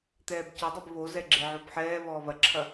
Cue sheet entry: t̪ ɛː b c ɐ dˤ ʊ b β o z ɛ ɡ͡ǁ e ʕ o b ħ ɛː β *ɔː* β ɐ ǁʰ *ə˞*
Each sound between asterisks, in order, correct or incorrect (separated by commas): correct, incorrect